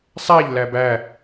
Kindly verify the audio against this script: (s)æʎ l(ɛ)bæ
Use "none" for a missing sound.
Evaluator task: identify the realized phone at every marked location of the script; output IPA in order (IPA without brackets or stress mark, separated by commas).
sˤ, æ